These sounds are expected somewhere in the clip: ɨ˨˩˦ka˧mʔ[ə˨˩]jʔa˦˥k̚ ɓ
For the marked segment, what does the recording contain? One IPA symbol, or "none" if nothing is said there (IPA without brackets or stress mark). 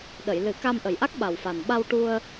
ə˨˩